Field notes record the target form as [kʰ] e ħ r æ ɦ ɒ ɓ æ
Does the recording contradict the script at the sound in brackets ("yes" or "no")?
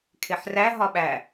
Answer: no